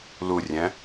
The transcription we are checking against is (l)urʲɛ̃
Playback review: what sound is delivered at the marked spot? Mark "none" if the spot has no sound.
l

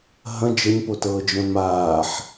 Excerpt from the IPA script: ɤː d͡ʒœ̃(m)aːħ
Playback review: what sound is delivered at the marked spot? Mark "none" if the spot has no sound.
m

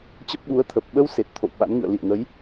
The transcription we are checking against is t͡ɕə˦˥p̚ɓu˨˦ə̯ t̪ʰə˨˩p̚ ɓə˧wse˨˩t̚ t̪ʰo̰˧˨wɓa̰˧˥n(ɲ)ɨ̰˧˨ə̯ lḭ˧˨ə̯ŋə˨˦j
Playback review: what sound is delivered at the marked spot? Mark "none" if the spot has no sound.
ŋ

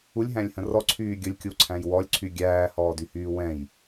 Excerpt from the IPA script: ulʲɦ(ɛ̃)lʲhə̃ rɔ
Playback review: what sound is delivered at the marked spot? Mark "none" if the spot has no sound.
æ̃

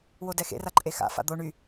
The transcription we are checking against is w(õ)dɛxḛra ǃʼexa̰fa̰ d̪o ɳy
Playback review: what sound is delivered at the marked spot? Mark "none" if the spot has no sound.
o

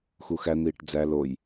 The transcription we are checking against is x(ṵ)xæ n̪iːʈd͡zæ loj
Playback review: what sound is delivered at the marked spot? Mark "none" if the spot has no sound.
u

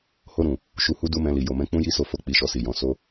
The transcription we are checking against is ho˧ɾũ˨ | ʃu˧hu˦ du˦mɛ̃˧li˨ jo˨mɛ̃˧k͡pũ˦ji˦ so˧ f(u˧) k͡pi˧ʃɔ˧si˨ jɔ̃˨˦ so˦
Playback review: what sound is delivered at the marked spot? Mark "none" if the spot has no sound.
o˧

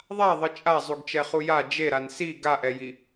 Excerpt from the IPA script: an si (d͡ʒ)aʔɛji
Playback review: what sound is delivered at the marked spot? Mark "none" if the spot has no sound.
ɡ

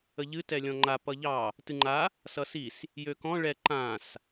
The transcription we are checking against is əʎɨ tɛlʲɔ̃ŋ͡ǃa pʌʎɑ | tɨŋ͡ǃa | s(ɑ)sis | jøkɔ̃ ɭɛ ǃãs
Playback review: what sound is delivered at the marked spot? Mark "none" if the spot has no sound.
ʌ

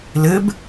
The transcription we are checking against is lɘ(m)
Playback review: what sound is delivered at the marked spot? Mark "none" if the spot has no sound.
b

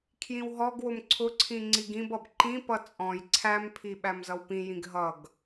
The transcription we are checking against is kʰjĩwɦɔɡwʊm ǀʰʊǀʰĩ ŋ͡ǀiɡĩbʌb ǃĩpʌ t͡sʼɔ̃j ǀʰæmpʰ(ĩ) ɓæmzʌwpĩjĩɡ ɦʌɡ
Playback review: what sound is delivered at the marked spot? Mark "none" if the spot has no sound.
i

